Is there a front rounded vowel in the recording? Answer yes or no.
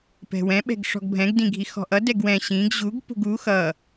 no